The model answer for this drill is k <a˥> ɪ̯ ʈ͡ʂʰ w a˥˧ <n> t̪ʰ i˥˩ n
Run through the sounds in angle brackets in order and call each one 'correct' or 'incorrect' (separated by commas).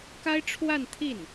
correct, correct